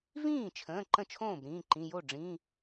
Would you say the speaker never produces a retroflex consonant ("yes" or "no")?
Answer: no